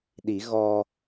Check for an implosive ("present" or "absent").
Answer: present